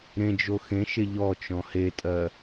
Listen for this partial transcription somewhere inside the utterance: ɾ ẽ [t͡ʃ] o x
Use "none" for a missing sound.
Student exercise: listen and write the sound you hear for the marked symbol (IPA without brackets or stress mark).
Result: d͡ʒ